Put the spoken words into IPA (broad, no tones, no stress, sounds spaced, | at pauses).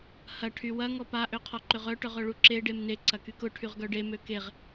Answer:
h ɐ ʈʰ y w ɐ ŋ ɔ p a ʔ ø qʰ ɔ ǃ ʏ ʁ œ ʈ œ ʁ œ ɭ u ǁ e ɖ e m n e ǀ ɐ k y k ʊ ʈʰ y ʁ ɡ œ ɖ e m ø k e ʁ